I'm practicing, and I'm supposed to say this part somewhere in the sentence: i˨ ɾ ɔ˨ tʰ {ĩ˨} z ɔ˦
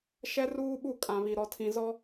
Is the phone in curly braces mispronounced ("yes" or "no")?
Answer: no